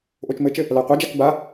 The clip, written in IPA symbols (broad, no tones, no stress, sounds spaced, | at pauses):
ʔ o t͡ʃ m ɘ t͡ʃ ɘ | l a qʷ ɘ d͡ʒ a k b a